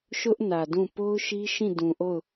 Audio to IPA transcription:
ʃ ʊ˦ ʔ n ä˨ d ũ˦˨ p o˦ ʊ̯ ʃ i˦ ʃ ĩ˦˨ d ũ˨ ʔ o˦˨ ʊ̯

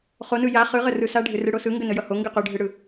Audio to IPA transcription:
χ o n ɯ j a χ ɯ ʁ ə r ɯ s a ɖʱ ʏ r ɯ ɽ o s ɯ ŋ ɡ ə n ə j ʌ h o ŋ ɡ ɯ q o ɖʱ ɯ ɽ ɯ

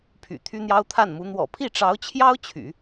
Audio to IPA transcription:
pʰ y̰˨˩ t̪ʰ y˥ n̪ j ɑ˥ ʊ̯ t̪ʰ a˥˩ n m u˧˥ n̪ w ɔ̰˨˩ pʰ i˥˩ ʈ͡ʂ ɑ˧˥ ʊ̯ t͡ɕʰ j ɑ˥ ʊ̯ t͡ɕʰ y̰˨˩˦

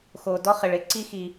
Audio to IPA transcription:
x o˨ d ɔ˦ χ ɪ˨ ɭ ɪ˨ ǀ i˦ x i˨

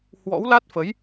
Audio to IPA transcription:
h w ɔ̰˧˥ w l a˦˥ t̚ f ə˨˦ j

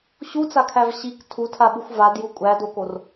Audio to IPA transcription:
ɕ u t͡s a kʰ æ v ɕ i k tʰ u tʰ a ɓ u xʷ v a d j u kʷʼ æ d o k o r

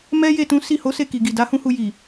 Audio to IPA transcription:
m ɛ˦ j e˦˨ t ũ˨˦ s i˦˨ h o˨˦ s e˦˨ k i˨ ɡ i˨ d a˨˦ h ũ˦ h u˧ j i˨

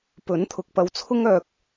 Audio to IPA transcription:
p ɵ˨˥ n t̪ʰ ʊ˨˥ k̚ p ɐ˨˧ w t͡sʰ ʊ˥ ŋ œː˨ k̚

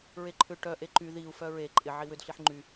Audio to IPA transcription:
ɹ e ǃʰ ʏ ʈ œ ʔ e ǃ y ð i u̯ f œ ɹ e ǃʼ ɪ ʕ i w ʏ d ɬ i ħ ŋ͡ǃ y

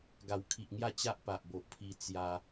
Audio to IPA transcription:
ɡ a˨˩ w kʰ i˨ ʔ ŋ j a˥˧ t͡ɕ a˦ ʔ p a˨ ʔ b o˨ ʔ pʰ i˧ t͡s j a˧

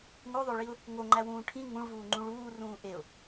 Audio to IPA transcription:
ŋ o ðˤ o ɭ i ʊ̯ | ŋ o ŋ͡ǃ æ w ũː ʈʰ ĩ ŋ ũ ɭ v uː ŋ͡ǃ ũ ɭ uː r ũː ʔ e ʊ̯

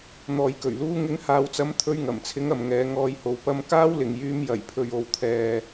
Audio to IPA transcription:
n̪ ɔː˨ j k ɵ˨˩ ɥ l uː˧ ŋ ɪ˨˧ ŋ h aː˨ w t͡s ɐ˨˥ m t̪ʰ ɵ˧ ɥ ŋ ɐ˨˩ m t͡sʰ ɪ˨˧ ŋ ɐ˨ m ŋ ɛː˨˧ ŋ ɔː˨ j h o˨ w p ɐ˧ m k aː˥ w l ɪ˨ ŋ j yː˧ m j ɐ˨˩ j pʰ ɵ˨ ɥ o˨ w t̪ʰ ɛː˨

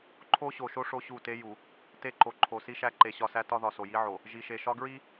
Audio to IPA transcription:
ǃʰ o˦ ɕ o˨ ʃ o˦ ʂ o˦ ɕ u˦˨ t e˦ j u˨ | t e˦ ǃ o˨ ǃʰ o˨ s i˦ ʃ æ˦ ǃ e˨ ɕ ɒ˦˨ s æ˦ t ɒ˦ ð ɒ˨ s o˨ j i˦ ʕ o˨ | ʒ i˨ ʃ e˨ ʃ ɒ˦ ɡ ɹ i˦

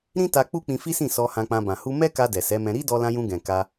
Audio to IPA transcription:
ɾ ĩ˦ t a˧ k͡p u˦ k͡p ĩ˧ f i˦ s ĩ˦˨ s ɔ˧ h ã˧ k͡p ã˧ b ã˨ h u˧ m ɛ˦ k a˧ d ɛ˨ s ɛ˨˦ m ɛ̃˧ ɾ i˦ d ɔ˧ l ã˧ j ũ˧ ɡ ɛ̃˨ k a˧

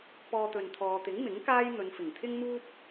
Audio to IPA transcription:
p ɔː˧ t̪ ɵ˨ n t̪ʰ ɔː˨ t̪ ɪ˨˥ ŋ m ɪ˨˥ ŋ k aː˥ j n̪ ɵ˨˧ n f ɪ˨˩ ŋ t̪ʰ ɪ˥ ŋ m uː˥ p̚

